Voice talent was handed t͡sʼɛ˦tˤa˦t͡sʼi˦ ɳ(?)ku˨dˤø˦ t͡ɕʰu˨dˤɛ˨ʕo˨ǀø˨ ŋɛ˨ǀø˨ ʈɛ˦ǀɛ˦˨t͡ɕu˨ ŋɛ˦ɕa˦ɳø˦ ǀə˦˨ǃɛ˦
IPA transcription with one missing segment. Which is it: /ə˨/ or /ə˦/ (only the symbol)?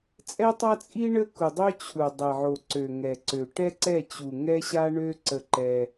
ə˦